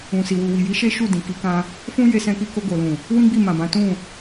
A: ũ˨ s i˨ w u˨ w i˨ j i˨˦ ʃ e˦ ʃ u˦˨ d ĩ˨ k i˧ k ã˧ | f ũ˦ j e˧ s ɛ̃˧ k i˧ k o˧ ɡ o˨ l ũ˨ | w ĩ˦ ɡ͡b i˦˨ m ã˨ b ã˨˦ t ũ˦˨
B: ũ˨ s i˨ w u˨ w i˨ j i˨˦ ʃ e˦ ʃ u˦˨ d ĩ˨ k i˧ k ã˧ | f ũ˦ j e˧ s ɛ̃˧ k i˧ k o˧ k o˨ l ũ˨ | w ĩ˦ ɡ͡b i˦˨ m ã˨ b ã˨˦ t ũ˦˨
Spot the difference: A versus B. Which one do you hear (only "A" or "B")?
A